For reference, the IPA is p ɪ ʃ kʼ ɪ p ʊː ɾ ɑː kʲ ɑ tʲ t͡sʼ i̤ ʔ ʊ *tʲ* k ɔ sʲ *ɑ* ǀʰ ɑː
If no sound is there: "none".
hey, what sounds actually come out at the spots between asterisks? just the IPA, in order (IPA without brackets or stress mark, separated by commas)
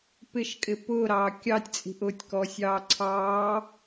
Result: tʲ, ɑː